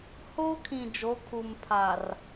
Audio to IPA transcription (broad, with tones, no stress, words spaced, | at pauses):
hoː˦kʰĩ˨ d͡ʒo˨˦kʰu˨m pʰaː˨r